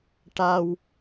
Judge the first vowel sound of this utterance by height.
low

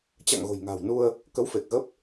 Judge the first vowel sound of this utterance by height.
low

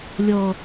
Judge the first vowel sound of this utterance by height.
mid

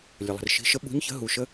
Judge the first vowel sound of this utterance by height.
mid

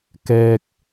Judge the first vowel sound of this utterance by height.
mid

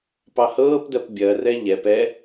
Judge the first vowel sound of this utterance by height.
low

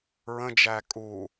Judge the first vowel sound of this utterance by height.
mid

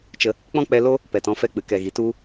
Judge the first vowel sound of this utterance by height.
mid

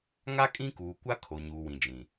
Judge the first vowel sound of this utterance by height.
low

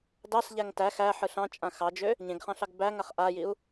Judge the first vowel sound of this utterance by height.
low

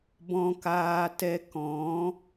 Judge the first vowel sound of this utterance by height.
mid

